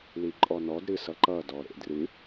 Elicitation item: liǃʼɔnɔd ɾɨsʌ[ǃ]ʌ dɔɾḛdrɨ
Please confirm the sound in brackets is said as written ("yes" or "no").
yes